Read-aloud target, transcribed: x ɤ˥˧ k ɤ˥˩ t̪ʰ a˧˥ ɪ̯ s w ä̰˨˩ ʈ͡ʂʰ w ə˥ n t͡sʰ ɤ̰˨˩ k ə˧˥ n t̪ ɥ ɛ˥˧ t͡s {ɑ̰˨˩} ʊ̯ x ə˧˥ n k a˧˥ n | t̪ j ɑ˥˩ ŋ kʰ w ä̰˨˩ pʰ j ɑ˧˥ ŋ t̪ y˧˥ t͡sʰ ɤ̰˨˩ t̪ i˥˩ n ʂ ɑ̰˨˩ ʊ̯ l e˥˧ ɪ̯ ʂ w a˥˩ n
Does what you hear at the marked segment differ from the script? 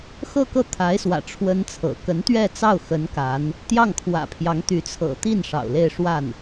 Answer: yes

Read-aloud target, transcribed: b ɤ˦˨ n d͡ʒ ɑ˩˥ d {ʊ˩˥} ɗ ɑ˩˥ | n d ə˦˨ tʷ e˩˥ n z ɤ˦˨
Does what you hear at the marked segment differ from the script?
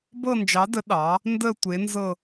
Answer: yes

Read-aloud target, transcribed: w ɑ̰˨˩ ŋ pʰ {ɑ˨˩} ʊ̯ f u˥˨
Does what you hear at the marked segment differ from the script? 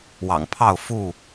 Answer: yes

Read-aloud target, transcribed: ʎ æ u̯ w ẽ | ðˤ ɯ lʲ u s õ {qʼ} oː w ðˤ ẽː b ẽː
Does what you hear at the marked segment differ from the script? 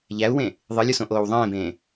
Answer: yes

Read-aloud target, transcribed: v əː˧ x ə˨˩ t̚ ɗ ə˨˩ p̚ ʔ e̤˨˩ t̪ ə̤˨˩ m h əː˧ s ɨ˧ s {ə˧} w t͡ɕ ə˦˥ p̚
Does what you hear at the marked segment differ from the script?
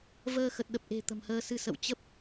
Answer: yes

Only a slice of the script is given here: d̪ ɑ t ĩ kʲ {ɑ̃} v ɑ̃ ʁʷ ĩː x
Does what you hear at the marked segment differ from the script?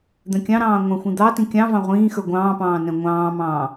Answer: no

